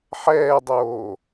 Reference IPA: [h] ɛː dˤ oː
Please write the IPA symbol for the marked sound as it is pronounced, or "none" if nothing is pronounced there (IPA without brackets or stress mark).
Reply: ħ